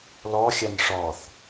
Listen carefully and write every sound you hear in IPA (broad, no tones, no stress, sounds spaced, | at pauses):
l ɔ xʲ a n ʂ ɔ θ